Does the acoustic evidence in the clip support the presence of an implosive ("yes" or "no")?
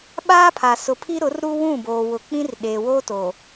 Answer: yes